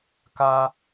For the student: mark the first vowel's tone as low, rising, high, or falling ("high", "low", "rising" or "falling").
high